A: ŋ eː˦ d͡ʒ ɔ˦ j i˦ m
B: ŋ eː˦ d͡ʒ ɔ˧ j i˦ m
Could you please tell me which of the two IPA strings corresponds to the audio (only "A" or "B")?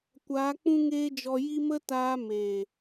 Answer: B